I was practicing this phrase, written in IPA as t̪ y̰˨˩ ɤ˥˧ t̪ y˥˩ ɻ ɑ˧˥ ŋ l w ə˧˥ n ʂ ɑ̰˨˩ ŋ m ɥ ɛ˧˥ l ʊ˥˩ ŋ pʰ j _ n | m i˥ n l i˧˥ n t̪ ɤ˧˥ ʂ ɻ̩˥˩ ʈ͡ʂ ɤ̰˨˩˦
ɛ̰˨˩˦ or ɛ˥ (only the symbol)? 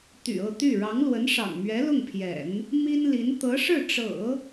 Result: ɛ̰˨˩˦